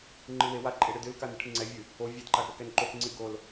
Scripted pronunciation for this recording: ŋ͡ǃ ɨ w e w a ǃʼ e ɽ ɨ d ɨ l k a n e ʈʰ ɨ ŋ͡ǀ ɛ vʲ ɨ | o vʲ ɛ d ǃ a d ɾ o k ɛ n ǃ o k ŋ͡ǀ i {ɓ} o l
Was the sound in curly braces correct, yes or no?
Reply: no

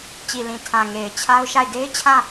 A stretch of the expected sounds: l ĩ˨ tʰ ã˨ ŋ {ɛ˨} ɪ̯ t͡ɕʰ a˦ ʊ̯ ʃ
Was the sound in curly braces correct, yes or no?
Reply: no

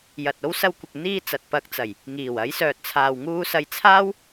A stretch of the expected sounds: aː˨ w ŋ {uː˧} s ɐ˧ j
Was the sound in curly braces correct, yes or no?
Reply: yes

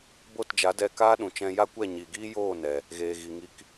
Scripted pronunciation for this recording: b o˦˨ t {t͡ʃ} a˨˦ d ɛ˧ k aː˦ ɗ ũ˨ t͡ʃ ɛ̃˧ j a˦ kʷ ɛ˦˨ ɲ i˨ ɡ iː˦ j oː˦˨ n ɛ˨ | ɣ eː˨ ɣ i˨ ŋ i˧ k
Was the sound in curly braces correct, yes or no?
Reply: no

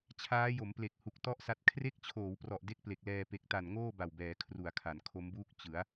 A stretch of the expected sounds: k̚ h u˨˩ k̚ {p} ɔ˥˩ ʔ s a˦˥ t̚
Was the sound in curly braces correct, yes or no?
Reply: no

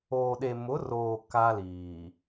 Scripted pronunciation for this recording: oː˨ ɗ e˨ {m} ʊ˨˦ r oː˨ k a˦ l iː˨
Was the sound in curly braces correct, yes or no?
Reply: yes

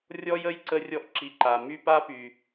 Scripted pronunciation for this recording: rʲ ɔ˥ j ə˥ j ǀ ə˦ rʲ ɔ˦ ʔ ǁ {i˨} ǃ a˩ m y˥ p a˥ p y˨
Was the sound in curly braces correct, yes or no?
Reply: yes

